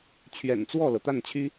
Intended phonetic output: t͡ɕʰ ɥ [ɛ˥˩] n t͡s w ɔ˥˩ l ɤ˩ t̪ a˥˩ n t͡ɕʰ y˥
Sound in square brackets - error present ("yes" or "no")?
yes